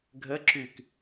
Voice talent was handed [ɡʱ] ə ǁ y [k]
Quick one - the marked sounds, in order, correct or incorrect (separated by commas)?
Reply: correct, correct